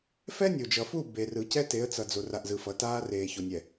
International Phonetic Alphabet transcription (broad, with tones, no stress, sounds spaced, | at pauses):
f ɛ˦ nʲ o˨ d͡ʒ ʌ˨ f u˦˨ b e˨ r ɯ˨ c ɛ˦ t e˨˦ ə̯ t͡s ʌ˨ d͡z o˨ r a˨ ʔ z ɯ˨ f ʌ˨ t aː˦ r eː˨ ç o˨ nʲ ɛ˨